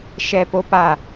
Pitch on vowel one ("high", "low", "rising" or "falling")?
high